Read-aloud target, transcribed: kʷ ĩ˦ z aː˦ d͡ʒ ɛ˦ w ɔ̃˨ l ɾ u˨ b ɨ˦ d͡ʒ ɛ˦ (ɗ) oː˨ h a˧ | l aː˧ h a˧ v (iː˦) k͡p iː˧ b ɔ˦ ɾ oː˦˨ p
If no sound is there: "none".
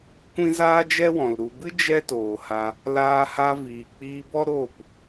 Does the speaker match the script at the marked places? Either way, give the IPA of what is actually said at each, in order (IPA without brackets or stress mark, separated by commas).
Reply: t, iː˨